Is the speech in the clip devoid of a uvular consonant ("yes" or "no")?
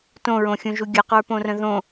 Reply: no